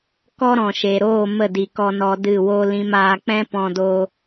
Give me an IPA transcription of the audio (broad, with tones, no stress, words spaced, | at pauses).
kɔ˦ɾɔ̃˨ʃe˨ɾoː˦˨ mə˦˨di˨kɔ˧ nɔ˧dɨ˦˨wo˦lĩ˦m aː˧k͡pɛ̃˦pɔ̃˧do˧